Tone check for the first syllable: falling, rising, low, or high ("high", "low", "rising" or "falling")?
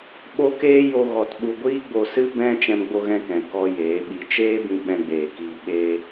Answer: high